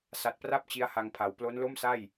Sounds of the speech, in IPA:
sa˨˩t̚pra˥˩p̚ t͡ɕi˦˥a̯ha˧ŋpʰa˩˦w plo˦˥nlo˥˩msa˥˩j

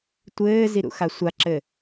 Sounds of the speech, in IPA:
tʷɘːziɾṵxa sʷaǁɘ

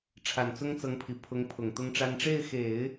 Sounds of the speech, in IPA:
ʈ͡ʂʰa˨˩nt͡sʊ˥ŋt͡sɤ˧˥ŋpʰi˨˩ pʰʊ˧˥ŋpʰʊ˨˩ŋ t̪ʊ˥ŋʈ͡ʂa˥n ʈ͡ʂe˥˩ɪ̯xe˨˩˦ɪ̯

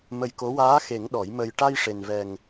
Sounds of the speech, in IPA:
mə˧jko˧˥ waː˧˥xe˨˩˦ŋ ɗɔ˨˩˦j mə˧j ʈa˧jʂe˨˩nvɛ˨˩ŋ

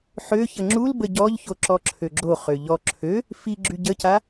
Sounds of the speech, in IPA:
ħø çəŋ͡ǁulbə ɟɔʎço ǁɔǁʰøɡ͡ǁoχø ʎɔ ǁʰø | fiɡ͡ǁy ɟəca

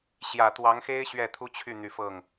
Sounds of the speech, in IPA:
ɕjä˨˩ t̪wɑ˧˥ŋxe˥ɪ̯ ɕɥɛ˥˩t̪ʰu˥t͡ɕʰy˥˩ n̪y˨˩ fɤ˥˩ŋ

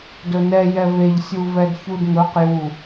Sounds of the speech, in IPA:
dɵnɛ jɛveʎ sʲuvɛdçudŋɵq ju

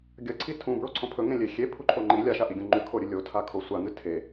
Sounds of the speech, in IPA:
ɡʲɐǀʰi tʰũbɹoǀʰõ pʰɵŋẽlʲe xʲepʰuǃʰo ŋ͡ǃi lʲaʃaʔiɡʲõ ŋ͡ǃʉkʰoɾʲɨ lʲotʰakʰo sʷaŋɨ tʰe

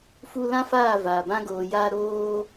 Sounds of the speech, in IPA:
fu˧ lã˦faː˦˨vaː˨ bã˧ɡoː˨jaː˧ ɾoː˦

